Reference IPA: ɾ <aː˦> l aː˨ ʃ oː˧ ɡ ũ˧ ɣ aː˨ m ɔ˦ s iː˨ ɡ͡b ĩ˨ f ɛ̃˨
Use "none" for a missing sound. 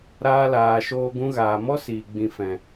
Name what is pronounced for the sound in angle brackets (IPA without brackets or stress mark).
aː˧